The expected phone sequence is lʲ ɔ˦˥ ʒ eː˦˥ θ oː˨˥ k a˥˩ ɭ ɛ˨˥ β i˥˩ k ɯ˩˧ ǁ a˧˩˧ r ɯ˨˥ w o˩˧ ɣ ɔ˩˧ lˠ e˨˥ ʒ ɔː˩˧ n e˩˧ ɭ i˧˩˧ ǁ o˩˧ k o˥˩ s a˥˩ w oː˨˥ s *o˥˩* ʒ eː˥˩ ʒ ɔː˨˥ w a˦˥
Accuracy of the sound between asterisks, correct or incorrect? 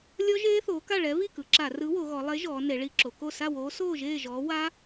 incorrect